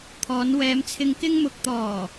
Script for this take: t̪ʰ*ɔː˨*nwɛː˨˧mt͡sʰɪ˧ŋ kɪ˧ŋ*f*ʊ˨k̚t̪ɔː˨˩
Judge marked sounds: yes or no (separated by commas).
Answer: no, no